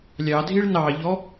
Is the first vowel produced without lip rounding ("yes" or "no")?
yes